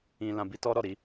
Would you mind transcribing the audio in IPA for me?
ĩ˧ l ã˧ b i˦ t ɔ˦ ɾ ɔ˦˨ ɾ i˧

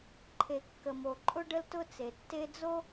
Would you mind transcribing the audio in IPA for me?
ǃʰ e˩ kː ə˩ m o˩ ǃʼ ʊ˥ ɖ ə˥ l t ʊ˥ t͡s e˩ tː e˥ d͡z o˥

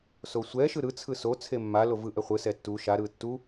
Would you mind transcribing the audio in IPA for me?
s o sʷ ɛ ʃ ɯ ɾ ɯ t͡sʰ ɯ s o t͡sʰ e mː a l o v ɯ ʔ ɛ χʷ ɯ s ɛ tː u ʃ a ɾ ɯ tː u

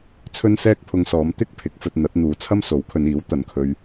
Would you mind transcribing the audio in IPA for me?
t͡sʰ ɵ˥ n s ɛː˥ k̚ pʰ ʊ˧ ŋ s ɔː˨˧ m t̪ ɪ˥ k̚ pʰ ɪ˨˥ k̚ f ɵ˧ t̚ n̪ ɐ˨˥ t̚ n̪ uː˨˧ t͡sʰ ɐ˥ m s o˨˥ w kʰ ɵ˨˧ n iː˨˥ w t̪ ɐ˨ n kʰ ɵ˧ ɥ

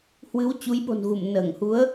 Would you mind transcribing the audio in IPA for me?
h w ɨ˨˦ w t͡ɕ u˨˦ j ɓ o̤˨˩ n ɣ u˧˩ m n əː˧˩ ŋ h u˨˦ ə̯

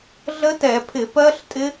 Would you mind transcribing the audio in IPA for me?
ɮ ə˦˥ t ɛ˧˩˧ pʰ ɪ˧˩˧ p ɜ˦˥ ɬ tʼ ɪ˦˥

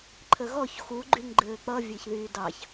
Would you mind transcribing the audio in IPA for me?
ǃʰ ə ɣ ɔ ç x u ɡ͡ǃ y ŋ ɡ͡ǃ ɘː k͡p ʌ vʲ e ç ð yː d ɑ ç

